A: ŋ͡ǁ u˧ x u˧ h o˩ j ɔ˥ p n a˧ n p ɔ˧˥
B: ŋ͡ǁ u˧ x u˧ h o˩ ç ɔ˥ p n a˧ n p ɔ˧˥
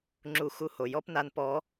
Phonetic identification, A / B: A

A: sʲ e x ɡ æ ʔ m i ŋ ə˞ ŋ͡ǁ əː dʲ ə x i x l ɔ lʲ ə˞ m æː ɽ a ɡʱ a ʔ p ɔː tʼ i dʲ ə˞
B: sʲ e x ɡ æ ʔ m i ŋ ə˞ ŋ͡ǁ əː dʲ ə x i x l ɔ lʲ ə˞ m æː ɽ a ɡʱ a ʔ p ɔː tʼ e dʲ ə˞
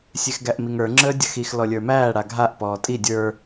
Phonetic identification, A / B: A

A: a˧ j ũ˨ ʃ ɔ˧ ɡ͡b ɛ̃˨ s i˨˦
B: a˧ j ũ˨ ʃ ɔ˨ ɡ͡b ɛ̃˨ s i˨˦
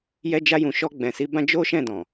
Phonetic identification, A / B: A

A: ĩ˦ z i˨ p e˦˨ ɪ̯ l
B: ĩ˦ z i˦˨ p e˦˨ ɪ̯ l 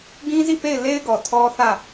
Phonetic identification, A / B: B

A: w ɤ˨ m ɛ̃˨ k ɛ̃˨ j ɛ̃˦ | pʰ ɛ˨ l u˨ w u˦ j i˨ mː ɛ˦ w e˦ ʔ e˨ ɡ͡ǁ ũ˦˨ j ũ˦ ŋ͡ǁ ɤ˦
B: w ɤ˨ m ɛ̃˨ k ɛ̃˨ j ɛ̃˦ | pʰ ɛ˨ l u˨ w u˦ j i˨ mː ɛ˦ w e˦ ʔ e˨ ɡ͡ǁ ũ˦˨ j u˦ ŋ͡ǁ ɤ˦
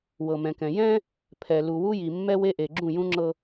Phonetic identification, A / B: A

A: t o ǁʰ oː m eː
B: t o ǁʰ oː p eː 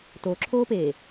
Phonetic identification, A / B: B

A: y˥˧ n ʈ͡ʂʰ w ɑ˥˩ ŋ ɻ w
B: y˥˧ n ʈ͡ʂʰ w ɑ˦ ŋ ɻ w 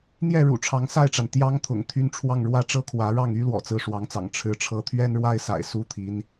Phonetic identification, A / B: A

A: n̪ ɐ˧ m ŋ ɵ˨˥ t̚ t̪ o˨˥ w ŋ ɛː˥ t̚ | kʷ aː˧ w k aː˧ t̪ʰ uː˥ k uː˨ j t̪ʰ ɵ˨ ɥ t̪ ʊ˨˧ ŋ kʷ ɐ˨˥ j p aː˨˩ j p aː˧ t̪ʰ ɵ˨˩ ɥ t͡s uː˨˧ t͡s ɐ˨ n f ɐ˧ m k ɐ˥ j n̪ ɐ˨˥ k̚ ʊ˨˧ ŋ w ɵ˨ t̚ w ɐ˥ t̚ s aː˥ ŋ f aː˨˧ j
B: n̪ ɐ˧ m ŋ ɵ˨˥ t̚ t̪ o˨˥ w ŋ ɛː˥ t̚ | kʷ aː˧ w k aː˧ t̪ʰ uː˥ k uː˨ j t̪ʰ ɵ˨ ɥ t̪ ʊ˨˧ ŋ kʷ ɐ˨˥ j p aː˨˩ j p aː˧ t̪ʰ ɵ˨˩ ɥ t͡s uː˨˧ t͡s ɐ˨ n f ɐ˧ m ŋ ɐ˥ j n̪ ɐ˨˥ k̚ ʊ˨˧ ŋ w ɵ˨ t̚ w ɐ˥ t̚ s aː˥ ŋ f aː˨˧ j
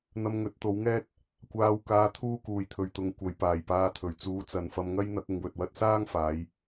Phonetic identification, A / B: B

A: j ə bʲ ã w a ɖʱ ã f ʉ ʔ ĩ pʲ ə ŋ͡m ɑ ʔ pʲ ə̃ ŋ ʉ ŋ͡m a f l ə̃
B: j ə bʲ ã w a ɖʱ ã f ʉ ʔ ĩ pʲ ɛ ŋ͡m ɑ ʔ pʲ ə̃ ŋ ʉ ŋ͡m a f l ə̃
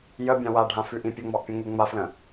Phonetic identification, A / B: A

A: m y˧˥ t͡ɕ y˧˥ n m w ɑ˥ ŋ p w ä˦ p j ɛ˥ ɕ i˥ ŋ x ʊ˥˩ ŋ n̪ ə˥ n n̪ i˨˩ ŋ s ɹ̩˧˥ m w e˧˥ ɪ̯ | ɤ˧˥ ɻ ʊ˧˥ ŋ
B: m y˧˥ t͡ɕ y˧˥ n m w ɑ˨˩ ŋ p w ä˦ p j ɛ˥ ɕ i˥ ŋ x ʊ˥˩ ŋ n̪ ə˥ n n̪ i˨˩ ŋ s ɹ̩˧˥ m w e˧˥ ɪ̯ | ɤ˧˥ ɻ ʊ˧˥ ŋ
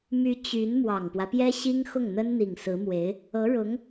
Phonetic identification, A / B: B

